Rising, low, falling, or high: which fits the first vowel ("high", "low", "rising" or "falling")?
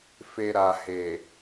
low